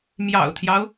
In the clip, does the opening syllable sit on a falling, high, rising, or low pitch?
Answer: low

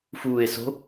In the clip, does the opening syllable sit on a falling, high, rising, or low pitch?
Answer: low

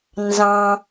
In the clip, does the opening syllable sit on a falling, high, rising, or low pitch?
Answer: low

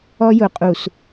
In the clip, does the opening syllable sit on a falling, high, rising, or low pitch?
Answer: high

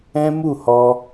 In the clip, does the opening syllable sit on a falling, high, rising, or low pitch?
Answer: high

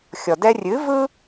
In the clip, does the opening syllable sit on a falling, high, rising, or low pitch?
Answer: low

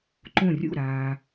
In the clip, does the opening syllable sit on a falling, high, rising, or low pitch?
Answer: falling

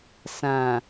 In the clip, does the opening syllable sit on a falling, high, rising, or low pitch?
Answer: low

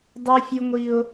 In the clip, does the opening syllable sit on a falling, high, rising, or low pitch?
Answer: high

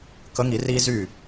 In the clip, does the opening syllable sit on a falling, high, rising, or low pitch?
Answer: rising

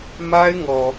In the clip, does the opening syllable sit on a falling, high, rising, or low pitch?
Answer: high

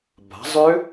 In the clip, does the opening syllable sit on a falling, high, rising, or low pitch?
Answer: rising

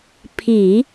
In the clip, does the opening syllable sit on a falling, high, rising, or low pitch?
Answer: low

